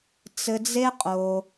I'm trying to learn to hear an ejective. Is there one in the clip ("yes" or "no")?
yes